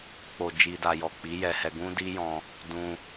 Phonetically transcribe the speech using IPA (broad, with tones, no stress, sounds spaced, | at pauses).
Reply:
k͡p o˨ d͡ʒ i˨ d a˨ j ɔ˨ k͡p i˨˦ j ɛ˧ h ɛ˧ ɡ ũ˦ d i˦ j ɔ̃˧ | d ũ˧